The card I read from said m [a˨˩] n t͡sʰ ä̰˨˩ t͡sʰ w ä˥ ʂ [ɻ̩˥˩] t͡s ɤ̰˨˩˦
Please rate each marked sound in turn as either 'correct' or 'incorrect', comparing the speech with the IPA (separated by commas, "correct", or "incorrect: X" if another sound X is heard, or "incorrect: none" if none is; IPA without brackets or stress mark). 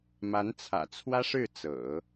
incorrect: a˧˥, correct